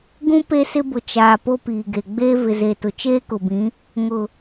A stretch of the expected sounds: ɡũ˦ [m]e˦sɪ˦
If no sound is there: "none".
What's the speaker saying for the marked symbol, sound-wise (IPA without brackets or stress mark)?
p